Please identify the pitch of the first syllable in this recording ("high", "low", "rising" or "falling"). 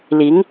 rising